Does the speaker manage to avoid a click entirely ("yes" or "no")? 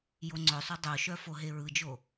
no